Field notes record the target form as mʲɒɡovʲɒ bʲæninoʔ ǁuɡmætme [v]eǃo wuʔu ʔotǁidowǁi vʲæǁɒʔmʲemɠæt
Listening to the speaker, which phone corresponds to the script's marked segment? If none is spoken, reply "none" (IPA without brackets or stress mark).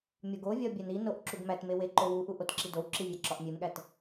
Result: w